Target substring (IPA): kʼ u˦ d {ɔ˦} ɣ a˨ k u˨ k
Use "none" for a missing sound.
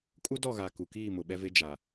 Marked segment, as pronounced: ɔ˦˨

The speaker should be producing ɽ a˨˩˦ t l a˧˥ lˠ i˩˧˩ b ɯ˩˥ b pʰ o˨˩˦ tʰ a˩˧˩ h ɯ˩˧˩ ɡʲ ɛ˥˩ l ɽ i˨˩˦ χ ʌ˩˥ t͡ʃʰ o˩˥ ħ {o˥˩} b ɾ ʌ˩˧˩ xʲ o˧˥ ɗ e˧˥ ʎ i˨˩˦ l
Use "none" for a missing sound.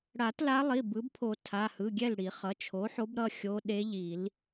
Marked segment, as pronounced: o˧˥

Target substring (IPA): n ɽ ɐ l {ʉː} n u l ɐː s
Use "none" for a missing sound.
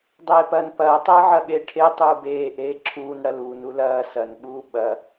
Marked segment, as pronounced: uː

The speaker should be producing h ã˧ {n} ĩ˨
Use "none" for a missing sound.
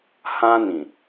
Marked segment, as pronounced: n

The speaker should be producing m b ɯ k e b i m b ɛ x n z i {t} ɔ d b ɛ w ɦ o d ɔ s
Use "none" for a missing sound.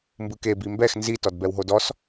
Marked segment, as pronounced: t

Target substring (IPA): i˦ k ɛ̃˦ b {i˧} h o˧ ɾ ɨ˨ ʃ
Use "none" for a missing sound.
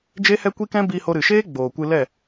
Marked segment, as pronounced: i˧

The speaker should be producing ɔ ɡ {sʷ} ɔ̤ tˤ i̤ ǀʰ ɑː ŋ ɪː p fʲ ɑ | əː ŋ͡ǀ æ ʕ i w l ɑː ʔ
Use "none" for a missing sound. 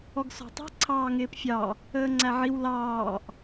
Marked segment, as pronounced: s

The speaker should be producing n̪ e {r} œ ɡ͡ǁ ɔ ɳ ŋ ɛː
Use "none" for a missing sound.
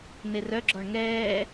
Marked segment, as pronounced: r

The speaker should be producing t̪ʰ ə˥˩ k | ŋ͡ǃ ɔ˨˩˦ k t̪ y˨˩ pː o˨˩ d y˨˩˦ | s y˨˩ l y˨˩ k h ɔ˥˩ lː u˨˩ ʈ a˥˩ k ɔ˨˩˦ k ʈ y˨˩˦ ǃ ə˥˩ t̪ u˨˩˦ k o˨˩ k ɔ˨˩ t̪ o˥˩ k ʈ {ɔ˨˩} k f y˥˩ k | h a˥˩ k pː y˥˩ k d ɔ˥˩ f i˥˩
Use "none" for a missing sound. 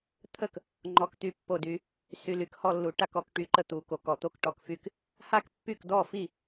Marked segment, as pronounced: ɔ˨˩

